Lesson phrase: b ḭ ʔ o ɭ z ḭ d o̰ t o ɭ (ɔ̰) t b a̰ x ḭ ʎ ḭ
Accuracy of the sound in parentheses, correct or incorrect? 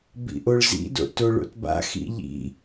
incorrect